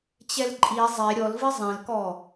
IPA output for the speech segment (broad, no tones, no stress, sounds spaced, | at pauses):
t͡ɕ ɛ l ǃʼ i zˤ e ɾʲ ɔ l v ɪ zˤ ẽ l k ɔ